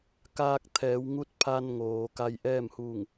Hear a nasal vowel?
no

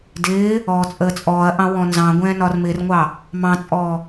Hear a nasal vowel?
yes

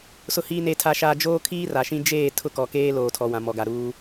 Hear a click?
no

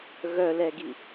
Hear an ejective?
no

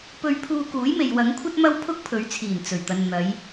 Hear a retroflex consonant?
no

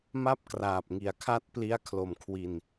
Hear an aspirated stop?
yes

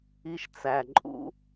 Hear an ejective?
yes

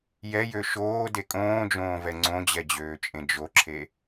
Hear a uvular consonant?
no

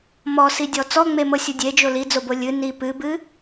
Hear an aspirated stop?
no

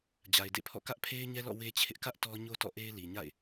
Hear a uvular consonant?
no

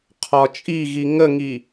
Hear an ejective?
yes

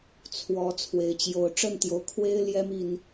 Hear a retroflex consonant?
yes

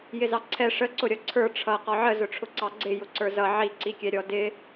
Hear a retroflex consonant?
yes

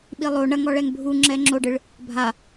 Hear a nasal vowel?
no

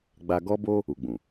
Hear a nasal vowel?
yes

